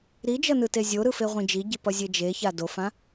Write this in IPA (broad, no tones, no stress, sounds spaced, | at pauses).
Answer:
ɾ i d͡ʒ ʌ n ɯ t e zʲ o ɾ ɯ f e ʁʷ ĩ d͡ʒ i ɟ i p ʌ zʲ e d͡ʒ e ç a d o f ã